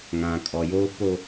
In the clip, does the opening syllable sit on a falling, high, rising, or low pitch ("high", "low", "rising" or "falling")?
low